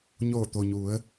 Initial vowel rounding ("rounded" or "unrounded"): rounded